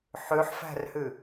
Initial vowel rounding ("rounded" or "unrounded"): rounded